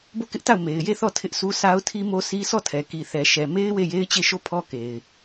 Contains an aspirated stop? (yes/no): yes